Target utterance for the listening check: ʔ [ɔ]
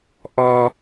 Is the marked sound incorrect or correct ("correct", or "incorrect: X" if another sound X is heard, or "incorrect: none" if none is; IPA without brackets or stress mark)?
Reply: correct